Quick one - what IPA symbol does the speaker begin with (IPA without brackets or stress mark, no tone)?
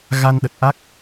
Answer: ɣ